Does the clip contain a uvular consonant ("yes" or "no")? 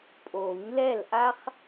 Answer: yes